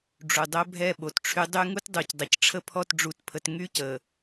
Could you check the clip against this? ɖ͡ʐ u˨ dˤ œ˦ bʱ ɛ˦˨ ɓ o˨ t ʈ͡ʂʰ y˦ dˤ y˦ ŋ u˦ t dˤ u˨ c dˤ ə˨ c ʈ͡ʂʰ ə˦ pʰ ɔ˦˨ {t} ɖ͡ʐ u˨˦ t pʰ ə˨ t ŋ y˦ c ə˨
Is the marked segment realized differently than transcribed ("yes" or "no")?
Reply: no